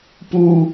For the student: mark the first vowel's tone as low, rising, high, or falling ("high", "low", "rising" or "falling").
low